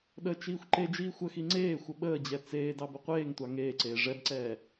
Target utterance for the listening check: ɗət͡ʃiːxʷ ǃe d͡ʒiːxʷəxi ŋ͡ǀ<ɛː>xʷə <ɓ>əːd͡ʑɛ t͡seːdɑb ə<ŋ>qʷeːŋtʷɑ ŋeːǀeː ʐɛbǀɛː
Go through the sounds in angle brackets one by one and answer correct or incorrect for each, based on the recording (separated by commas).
incorrect, correct, incorrect